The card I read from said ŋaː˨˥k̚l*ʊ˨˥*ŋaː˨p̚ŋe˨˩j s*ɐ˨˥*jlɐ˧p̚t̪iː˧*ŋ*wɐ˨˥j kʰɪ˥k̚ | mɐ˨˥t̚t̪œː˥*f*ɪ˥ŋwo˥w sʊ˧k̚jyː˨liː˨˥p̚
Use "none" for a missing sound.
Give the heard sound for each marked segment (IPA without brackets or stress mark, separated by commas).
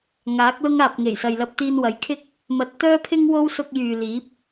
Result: ʊ˥, ɐ˨, n, pʰ